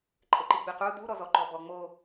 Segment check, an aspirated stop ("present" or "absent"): absent